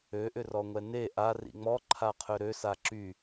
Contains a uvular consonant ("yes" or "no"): yes